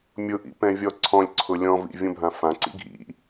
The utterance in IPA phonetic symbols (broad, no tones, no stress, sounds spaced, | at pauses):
mʲ ʊ ʔ ḭ p ɛ̃ vʲ ɔ ǀʰ ɔ̃ lʲ ǀʰ ʊ lʲ ɔ̃ v ḭ vʲ õ bʱ ã f ã ǀ ḭ ɡʱ ḭ